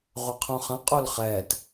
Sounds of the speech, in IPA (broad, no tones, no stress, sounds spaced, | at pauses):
ʁʷ ɐ qʰ õ χ ɐ̃ qʼ o l χ ɛː t